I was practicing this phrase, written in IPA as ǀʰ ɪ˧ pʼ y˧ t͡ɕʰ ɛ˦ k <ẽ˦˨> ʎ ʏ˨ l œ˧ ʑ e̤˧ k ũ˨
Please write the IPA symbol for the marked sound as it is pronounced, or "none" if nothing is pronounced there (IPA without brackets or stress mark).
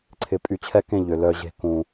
ẽ˦˨